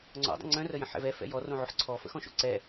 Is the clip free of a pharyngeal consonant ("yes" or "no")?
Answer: no